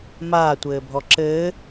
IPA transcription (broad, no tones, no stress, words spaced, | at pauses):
maːtʷɘːbʱɔ ǁɘː